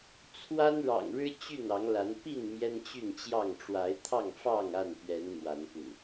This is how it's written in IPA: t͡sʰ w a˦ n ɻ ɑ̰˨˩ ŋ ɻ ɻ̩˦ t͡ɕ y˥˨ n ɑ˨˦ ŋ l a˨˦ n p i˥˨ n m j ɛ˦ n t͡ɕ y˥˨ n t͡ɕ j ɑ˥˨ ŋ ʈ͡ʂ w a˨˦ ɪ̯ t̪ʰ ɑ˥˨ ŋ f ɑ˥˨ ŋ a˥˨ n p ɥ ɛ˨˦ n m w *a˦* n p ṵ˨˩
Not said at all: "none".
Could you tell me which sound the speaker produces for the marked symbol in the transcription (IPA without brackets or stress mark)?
a˨˦